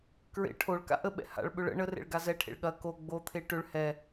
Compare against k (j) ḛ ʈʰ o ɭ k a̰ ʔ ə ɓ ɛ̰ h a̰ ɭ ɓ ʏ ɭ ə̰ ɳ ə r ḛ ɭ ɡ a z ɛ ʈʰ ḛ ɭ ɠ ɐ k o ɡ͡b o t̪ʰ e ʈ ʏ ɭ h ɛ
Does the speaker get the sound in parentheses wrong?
yes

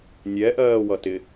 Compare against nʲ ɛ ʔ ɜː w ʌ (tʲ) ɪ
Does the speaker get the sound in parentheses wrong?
yes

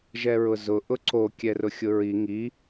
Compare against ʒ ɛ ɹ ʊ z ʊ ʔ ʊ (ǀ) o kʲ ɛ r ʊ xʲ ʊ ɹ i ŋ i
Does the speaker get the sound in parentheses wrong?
no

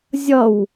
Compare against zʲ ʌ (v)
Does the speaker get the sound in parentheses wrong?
yes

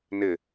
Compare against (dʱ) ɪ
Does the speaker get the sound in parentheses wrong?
yes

